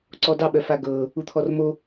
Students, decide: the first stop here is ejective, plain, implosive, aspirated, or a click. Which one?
click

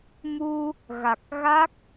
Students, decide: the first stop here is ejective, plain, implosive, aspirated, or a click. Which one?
plain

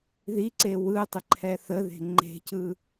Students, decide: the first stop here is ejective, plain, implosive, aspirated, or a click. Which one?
click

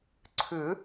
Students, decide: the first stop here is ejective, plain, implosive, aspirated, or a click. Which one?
click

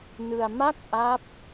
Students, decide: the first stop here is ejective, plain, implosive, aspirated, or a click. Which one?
plain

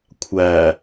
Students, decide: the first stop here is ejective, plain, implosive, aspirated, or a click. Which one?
aspirated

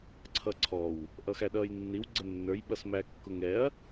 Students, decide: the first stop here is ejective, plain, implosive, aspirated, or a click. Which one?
click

